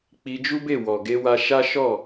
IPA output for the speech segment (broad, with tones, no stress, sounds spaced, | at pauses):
k͡p i˧ d͡ʒ u˦ b e˦˨ w ɔ˨ ɡ e˧ w a˧ ʃ a˦ ʃ ɔ˦˨